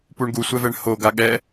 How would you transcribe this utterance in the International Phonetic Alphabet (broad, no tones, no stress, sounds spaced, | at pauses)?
p u ɳ ɡ u sʷ ɛ v ɛ ɳ h o ɡ a ɠ ɛ